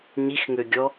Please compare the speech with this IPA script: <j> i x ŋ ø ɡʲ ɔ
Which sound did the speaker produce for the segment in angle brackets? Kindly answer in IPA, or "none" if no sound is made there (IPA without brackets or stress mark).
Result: ɲ